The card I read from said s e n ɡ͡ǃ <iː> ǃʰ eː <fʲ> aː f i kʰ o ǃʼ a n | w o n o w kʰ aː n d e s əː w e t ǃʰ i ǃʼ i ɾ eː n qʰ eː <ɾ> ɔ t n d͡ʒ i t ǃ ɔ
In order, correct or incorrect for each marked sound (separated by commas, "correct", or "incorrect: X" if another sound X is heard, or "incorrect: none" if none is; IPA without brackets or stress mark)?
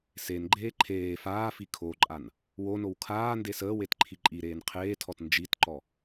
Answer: incorrect: eː, incorrect: f, incorrect: tʰ